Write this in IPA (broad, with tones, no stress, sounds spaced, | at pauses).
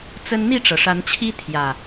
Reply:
t͡s ə˦ n n̪ i˥˨ ʈ͡ʂ ɤ˩ ʂ a˨˦ n t͡ɕʰ i˦ t̪ʰ j ä˨˩